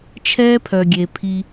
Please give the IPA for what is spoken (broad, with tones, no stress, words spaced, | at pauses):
t͡ʃʰɛː˦pʰœ˨ɡʲe˨pʰi˧